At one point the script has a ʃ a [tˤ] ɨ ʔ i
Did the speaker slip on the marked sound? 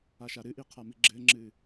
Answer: yes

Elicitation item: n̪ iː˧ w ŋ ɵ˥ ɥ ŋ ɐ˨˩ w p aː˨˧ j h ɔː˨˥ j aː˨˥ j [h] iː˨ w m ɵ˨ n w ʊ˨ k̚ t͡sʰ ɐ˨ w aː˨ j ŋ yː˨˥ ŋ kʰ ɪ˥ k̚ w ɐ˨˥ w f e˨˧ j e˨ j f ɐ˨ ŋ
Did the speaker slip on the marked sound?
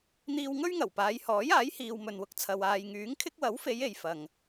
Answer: no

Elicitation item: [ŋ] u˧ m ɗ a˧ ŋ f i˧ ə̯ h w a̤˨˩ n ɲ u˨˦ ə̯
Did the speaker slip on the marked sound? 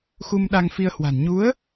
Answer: yes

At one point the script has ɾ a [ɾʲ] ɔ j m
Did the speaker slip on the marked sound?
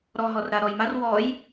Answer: yes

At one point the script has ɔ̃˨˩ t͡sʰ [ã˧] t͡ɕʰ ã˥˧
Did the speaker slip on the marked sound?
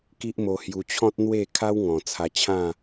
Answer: yes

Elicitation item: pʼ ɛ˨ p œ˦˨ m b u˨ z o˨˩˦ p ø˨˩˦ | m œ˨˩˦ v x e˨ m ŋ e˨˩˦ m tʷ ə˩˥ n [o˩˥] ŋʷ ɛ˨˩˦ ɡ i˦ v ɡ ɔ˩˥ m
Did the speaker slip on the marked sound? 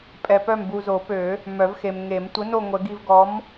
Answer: yes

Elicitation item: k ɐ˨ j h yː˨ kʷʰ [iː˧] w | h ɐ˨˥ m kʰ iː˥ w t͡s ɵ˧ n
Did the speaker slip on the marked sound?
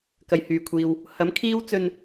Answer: yes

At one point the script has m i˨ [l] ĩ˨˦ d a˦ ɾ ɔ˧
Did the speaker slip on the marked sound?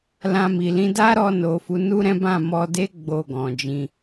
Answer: no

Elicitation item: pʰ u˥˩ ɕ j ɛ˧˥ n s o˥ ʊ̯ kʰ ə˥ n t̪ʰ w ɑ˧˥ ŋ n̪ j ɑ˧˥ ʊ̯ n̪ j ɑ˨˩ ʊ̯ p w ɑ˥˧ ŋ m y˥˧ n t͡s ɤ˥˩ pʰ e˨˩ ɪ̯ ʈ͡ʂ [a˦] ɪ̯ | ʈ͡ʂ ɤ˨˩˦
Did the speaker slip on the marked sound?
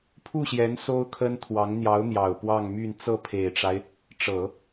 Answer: no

